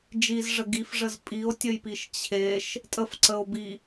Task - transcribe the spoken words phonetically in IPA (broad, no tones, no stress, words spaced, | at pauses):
d͡ʒizʐə ɡifʐəz pʼio̯tʲəjpiʃ t͡ɕʰeʃ | tʼəfǀəo̯bi